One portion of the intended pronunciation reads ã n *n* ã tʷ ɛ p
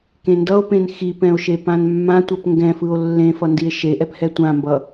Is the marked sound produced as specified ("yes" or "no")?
no